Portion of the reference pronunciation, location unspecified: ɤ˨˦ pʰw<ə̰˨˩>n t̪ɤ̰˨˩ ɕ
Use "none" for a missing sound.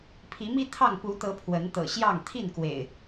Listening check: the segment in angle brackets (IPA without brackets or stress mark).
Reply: ə˨˦